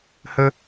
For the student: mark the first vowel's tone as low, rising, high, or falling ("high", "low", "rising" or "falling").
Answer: high